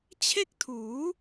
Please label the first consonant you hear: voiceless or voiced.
voiceless